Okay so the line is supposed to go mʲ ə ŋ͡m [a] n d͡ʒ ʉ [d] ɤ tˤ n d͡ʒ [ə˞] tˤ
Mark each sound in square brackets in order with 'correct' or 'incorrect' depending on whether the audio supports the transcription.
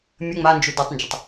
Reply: correct, correct, incorrect

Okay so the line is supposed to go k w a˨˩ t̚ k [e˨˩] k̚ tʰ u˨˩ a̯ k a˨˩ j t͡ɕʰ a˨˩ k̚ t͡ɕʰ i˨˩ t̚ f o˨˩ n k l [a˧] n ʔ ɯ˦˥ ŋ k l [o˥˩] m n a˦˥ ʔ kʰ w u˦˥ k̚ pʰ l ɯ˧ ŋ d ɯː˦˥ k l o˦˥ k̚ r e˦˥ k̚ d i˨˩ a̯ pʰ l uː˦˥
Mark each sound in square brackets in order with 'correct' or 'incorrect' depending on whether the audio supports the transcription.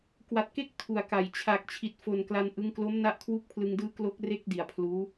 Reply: incorrect, correct, incorrect

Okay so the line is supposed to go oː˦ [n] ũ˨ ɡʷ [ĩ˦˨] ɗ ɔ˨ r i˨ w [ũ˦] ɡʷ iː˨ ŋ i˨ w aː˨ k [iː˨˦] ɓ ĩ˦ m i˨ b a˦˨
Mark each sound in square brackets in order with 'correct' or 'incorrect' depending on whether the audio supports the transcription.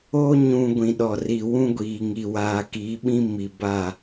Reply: incorrect, incorrect, correct, correct

